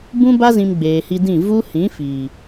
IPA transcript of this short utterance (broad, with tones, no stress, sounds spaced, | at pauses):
b ũ˦ b a˦ z ĩ˧ m ɡ͡b eː˨ h i˧ d ĩ˦˨ v u˦ h ĩ˨˦ f iː˨